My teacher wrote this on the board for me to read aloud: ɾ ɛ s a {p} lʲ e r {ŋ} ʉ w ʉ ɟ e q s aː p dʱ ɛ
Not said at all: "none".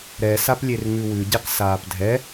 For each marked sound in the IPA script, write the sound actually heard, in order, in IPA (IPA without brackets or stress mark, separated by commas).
p, ŋ